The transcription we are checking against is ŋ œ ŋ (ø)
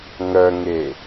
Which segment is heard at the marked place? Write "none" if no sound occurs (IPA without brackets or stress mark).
e